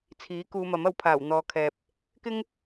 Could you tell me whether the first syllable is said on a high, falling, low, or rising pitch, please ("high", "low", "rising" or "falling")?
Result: rising